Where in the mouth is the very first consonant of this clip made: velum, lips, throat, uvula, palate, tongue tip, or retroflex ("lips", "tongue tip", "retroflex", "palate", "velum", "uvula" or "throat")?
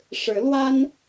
retroflex